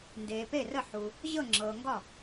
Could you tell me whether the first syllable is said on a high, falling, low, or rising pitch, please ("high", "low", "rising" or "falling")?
low